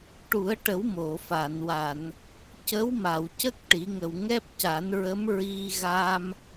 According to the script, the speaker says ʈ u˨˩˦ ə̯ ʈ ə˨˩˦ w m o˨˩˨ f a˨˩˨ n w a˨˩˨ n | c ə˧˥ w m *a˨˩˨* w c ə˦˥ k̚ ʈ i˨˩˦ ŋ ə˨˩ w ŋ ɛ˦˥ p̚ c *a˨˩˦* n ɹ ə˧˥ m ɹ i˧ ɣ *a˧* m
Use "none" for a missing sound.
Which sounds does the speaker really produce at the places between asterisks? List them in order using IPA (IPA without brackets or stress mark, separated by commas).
a˨˩˨, a˨˩˦, a˧